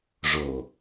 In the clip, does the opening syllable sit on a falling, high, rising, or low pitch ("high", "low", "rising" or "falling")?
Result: low